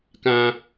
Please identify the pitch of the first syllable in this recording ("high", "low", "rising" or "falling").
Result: high